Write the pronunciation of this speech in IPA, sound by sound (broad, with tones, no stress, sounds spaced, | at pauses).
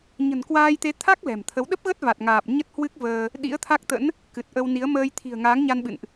ɲ ə̤˨˩ n k w aː˧ j t̪ e˨˦ t̪ʰ a˦˥ k̚ l ɛ̤˨˩ m t̪ʰ ə˨˦ w ɗ ə˦˥ p̚ ɣ ə˦˥ t̚ v a˨˩ t̚ ŋ aː˨˩ p̚ ɲ ə˦˥ t̚ h w ɨ˦˥ k̚ v əː˧ | ɗ ḭ˧˥ ə̯ t̪ʰ a˦˥ k̚ t̪ ə̰˧˥ n | k ɨ˨˩ t̚ ʔ ə˧ w n i˨˦ ə̯ m əː˧ j t̪ʰ i̤˨˩ ə̯ ŋ aː˨˦ ŋ ɲ a˧ n ɓ ɨ̰˧˨ n ʔ